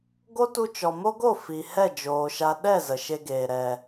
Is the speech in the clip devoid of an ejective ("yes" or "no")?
yes